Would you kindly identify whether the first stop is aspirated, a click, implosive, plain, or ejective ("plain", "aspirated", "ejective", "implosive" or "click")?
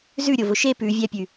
plain